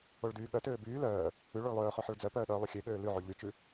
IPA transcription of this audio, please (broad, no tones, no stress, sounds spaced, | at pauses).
o ɭ d yː ɠ œ t øː b yː l œː | ʉ ɭ o ɭ lˠ øː χ ø ħ œ ɭ d͡z œ p œː ɗ œː lˠ ʉ xʲ ø ɠ øː l ʉ ʕ y ʎ y t͡ʃ ʉ